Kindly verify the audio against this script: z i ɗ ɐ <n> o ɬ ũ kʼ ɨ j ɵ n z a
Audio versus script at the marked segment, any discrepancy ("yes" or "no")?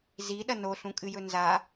no